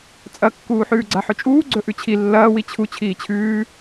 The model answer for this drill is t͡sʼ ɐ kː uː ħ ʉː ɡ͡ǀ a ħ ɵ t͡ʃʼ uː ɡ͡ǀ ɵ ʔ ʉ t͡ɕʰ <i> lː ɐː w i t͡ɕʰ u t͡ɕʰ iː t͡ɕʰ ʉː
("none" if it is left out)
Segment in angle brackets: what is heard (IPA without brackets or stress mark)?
i